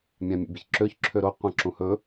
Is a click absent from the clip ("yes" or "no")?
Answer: no